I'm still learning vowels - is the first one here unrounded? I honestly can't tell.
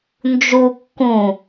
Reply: no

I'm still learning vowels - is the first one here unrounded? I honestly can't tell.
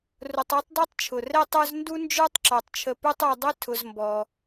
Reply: no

